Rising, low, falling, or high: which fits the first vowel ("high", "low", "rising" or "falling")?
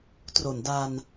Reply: low